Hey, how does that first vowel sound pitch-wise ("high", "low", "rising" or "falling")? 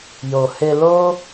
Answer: low